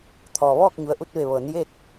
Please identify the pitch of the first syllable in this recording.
low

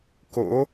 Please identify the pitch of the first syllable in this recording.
rising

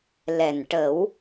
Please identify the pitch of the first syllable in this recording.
low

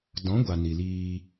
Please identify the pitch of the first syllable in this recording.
rising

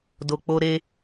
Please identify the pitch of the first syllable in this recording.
low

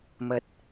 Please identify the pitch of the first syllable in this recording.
low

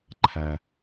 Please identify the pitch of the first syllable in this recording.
low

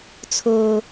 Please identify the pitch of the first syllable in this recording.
high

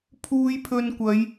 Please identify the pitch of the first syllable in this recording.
low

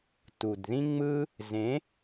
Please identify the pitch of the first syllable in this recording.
low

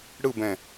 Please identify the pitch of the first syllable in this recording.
falling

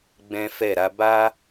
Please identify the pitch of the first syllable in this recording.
high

